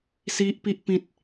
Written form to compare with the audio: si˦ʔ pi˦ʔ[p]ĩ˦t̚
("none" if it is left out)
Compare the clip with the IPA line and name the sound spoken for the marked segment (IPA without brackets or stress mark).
p